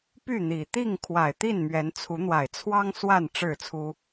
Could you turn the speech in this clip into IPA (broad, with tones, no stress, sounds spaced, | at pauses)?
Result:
p y˥˨ n̪ i˨˩ t̪ i˥˨ ŋ kʰ w a˨˩ ɪ̯ t̪ i˥˨ n m ɥ ɛ˨˦ n t͡sʰ u˨˦ n̪ w a˨˩ ɪ̯ t͡sʰ w ɑ˦ ŋ s w a˥˨ n ʈ͡ʂ ɻ̩˥˨ t͡sʰ u˦